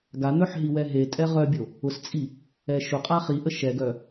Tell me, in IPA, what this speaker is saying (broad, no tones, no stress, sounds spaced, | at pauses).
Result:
ɡ a n̪ œ ħ ɦ i w ɛ ɦ e tʼ ɛ ʁ œ bʲ o | ʊ s t͡sʼ i | ɛ ʃ ʊ qʼ a χ i ʔ ə ʃ ɛ ɡ œ